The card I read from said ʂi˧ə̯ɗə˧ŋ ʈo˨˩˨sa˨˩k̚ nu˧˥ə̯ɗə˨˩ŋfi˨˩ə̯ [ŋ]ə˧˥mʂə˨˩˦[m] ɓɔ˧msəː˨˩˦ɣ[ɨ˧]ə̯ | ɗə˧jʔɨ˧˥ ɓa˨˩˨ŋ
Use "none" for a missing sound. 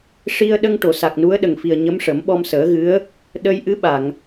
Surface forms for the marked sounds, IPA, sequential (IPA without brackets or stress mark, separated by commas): ɲ, m, ɨ˧˥